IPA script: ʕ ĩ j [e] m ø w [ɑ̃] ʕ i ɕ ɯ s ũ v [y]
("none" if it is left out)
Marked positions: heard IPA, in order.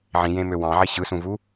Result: ẽ, ɑ̃, u

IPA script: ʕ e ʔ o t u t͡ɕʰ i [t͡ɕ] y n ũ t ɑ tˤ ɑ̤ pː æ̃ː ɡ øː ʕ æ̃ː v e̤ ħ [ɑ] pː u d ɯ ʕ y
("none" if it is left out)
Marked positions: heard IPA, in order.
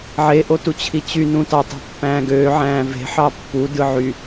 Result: t͡ɕ, ɑ

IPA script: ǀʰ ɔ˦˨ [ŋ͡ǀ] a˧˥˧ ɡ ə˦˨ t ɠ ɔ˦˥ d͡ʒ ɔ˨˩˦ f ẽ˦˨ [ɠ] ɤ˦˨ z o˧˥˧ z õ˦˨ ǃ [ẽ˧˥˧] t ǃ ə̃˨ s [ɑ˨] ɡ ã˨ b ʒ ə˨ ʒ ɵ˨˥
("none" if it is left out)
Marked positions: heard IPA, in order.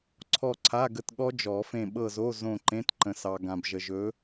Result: ǀʰ, ɓ, ẽ˧˥˧, ɑ˨

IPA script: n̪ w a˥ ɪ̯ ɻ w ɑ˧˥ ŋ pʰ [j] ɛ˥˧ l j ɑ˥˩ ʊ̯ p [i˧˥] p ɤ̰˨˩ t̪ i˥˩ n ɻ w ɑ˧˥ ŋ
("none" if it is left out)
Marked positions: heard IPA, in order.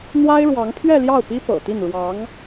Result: ɥ, i˥

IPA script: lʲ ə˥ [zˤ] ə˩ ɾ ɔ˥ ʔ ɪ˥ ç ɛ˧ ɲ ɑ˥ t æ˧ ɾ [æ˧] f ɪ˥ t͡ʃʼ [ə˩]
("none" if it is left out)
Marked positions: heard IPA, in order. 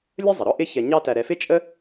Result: zˤ, ɛ˧, ə˥

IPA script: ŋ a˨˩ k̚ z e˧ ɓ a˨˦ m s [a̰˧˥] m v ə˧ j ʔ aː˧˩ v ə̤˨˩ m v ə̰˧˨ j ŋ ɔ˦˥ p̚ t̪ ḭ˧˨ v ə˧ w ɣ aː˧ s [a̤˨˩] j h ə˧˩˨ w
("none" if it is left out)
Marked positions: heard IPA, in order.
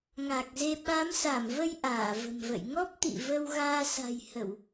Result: a˧˩, a̤˨˩

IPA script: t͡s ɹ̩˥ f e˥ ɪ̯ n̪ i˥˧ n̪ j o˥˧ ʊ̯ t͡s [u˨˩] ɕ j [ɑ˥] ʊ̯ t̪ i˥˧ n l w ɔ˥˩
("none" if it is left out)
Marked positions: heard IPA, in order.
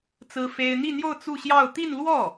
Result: u˥˧, ɑ˥˧

